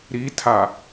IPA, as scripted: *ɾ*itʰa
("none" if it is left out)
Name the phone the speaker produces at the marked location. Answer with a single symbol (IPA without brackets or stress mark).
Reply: ɾ